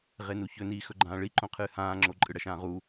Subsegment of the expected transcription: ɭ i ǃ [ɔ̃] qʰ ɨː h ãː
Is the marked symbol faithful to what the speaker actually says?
no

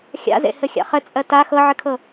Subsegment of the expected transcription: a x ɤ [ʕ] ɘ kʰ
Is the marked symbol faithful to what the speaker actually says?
yes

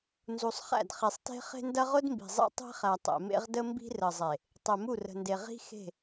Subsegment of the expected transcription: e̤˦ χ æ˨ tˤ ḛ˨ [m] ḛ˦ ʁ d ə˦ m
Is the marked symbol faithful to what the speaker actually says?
yes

